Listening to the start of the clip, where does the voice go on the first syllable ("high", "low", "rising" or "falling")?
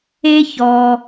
high